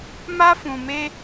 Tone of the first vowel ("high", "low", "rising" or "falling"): high